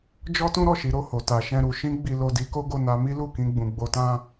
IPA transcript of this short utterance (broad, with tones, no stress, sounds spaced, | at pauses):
d͡ʒ ɔ˦ t ũ˦ ɾ ɔ˦˨ ʃ i˨˦ ɾ o˧ h o˨ t a˧ ʃ ɛ̃˦ ɾ u˧ ʃ ĩ˦ ɡ͡b i˧ l o˧ d i˧ k o˦ ɡ o˧ n a˧ m i˦ l u˦˨ k ĩ˧ ɡ͡b ũ˨ ɡ͡b o˧ t ã˦